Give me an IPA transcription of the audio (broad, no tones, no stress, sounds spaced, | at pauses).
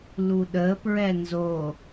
l u ɗ ə p ɹ ɛ n z o